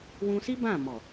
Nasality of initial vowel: nasal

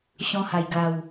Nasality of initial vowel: nasal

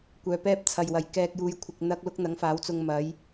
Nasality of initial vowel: oral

